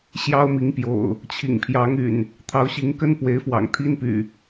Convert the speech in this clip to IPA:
ɕ j ɑ˦ ʊ̯ m i˨˦ ŋ p j o̰˨˩ ʊ̯ | t͡ɕʰ ḭ˨˩ ŋ pʰ j ɑ˨˦ ŋ y̰˨˩ n | t̪ʰ ɑ˨˦ ʊ̯ ɕ i˨˦ ŋ k ə˦ n p w e˨˦ ɪ̯ f w ɑ̰˨˩ ŋ t̪ʰ i˦ n p y̰˨˩

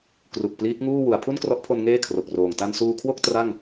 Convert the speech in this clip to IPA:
k r u˨˩ k̚ p l iː˦˥ k̚ ŋ uː˥˩ w u˩˦ a̯ pʰ u˥˩ n k r ɔ˦˥ ʔ pʰ o˧ n ŋ eː˥˩ kʰ r o˨˩ k̚ r oː˨˩ ŋ t a˧ n s uː˧ kʰ w o˥˩ k̚ t r a˥˩ ŋ

